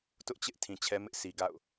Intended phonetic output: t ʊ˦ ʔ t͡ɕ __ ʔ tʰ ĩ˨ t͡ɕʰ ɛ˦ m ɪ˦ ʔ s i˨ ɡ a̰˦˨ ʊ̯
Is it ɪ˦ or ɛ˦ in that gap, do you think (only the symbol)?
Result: ɪ˦